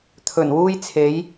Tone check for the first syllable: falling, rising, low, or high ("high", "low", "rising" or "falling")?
low